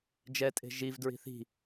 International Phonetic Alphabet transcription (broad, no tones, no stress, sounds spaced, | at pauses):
d͡ʒ ɛ tʼ e̤ ʒ i v d ɹ i̤ θ i̤